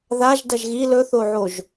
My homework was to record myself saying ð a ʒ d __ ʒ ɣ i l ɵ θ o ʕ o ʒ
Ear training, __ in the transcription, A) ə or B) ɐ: B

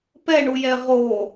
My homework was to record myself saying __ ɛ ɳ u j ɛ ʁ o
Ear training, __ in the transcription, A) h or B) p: B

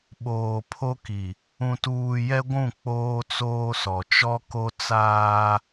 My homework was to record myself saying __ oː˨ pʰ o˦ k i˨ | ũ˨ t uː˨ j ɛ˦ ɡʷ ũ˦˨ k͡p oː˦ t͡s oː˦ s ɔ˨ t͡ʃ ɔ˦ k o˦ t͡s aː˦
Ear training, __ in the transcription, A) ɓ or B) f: A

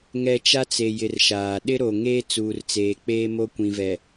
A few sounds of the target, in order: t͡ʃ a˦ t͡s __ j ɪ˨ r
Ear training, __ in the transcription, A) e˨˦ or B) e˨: B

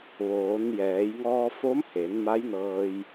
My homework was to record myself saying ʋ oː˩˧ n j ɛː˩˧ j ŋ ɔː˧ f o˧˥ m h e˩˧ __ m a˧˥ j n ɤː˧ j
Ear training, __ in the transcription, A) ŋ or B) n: B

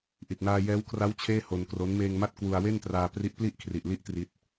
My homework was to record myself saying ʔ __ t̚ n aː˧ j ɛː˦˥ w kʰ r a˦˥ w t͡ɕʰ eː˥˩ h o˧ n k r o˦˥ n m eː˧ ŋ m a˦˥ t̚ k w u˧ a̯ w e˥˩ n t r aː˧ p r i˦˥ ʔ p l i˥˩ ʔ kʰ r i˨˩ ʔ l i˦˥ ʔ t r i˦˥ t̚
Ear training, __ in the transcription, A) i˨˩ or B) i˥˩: A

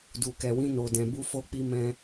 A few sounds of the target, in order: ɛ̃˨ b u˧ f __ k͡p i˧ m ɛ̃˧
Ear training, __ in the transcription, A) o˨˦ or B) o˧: B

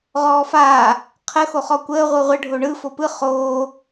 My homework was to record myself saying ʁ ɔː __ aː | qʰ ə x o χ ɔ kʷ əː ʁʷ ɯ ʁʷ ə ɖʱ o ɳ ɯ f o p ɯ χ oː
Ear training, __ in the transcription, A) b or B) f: B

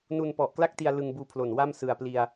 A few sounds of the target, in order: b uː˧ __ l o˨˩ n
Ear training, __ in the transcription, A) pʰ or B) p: A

